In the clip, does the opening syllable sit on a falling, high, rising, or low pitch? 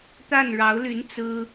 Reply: falling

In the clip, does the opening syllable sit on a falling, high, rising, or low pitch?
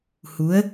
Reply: rising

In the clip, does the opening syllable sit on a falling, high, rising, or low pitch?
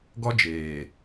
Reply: high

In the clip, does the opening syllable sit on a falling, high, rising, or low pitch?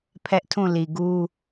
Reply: high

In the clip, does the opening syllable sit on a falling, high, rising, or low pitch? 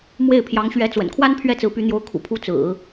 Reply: falling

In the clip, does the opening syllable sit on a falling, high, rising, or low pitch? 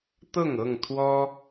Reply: falling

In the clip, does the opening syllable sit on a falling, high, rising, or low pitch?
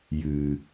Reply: low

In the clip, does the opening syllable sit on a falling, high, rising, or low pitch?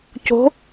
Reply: rising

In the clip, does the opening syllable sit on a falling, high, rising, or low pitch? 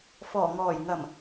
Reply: low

